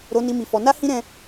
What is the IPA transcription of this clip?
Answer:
ɾ o˧ n i˧ m i˧ f ɔ˧ n a˦ h ĩ˦ ɾ ɛ̃˦

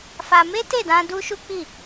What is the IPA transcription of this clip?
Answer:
f a˧ m e˦ t e˦˨ d ã˧ d u˦ ʃ u˦ k͡p i˦˨

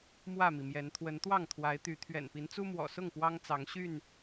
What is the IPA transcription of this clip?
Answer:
m w ä˥˨ m i˩ m j ɛ˨˦ n t̪ʰ w ə˨˦ n t̪ w ɑ˥˨ ŋ t̪ʰ w a˨˦ ɪ̯ t̪ y˨˦ t̪ʰ ɥ ɛ̰˨˩ n p i˨˦ n t͡s u˦ m w ɔ̰˨˩ s ʊ˥˨ ŋ p w ɑ˦ ŋ t͡s ɑ˨˦ ŋ ɕ y˥˨ n

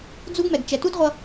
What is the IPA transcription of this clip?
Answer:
d͡z u˦ ɡ m ɛ˨ ɡ t͡ʃ ɛ˨ t u˦ d ʁʷ ʌ˧

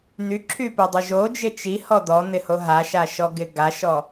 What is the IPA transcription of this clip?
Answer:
n̪ y ǁʰ y p i dˤ y ʒ o d͡ʒ ɪ t͡ʃ i h ɔ d̪ ɔ n̪ ɪ h o ɦ a ʃ a ʃ ɔ ɡ ɪ ɡ a ʃ ɔ

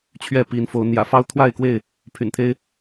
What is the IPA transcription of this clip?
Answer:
t͡ɕʰ ɥ ɛ˥˨ p i˨˦ n f o˨˦ ʊ̯ n̪ j ä̰˨˩ f ɑ˦ ʊ̯ t̪ʰ w a˥˨ ɪ̯ k w e˥˨ ɪ̯ | pʰ y̰˨˩ n t̪ʰ e˦ ɪ̯

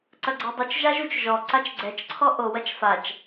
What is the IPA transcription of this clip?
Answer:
ǀ ɐ ɡ͡ǀ ɛ dˤ u t͡ʃ ʒ a ʒ u t͡ʃ ʒ ɔ ǀ a t͡ʃ ɡ͡ǀ ɛ t͡ʃ ǀʰ ɔ ʔ o w ɐ t͡ʃ f a t͡ʃ

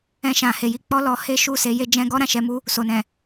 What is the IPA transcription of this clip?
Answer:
ɛ̃˧ ʃ ã˨ h e˨ j i˧ k͡p ɔ˦ l ɔ˧ h e˦ ʃ u˦˨ s e˧ j e˦ d͡ʒ ɛ̃˦ ɡ ɔ˦ ɾ ã˦˨ ʃ ɛ˨˦ m u˦ | s o˨ n ɛ̃˨

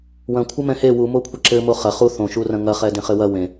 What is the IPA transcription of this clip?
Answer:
w ɐ̃ kʷʰ ɘ m ɛ̃ h e w u m o kʷʰ ɐ ǁ ɘ m o χ ɐ χ u θ õ ʃ u r ɐ̃ ŋ ɐ χ ɛ d ẽ χ ɘ w ɐ w ẽ

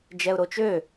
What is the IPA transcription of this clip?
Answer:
d͡ʒ ɛ ʊ̯ ɾ o t͡ʃ ø

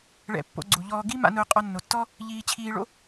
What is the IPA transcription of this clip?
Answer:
ɭ ɛ̰˧ pː o̰˧ ɡ͡ǀ u˨ ʎ ɔː˧ ɡ i˦ m a̰˧ n ʊː˧ qʼ ɔ˧ nː o˨ tː ɔ˦ | ʎ iː˧ t͡ɕʰ iː˧ ɭ o̰˦

